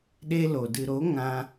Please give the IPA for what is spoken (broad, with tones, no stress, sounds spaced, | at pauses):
ɗ e˦ l o˨ d ɨ˨ ɾ o˨˦ ŋ ã˧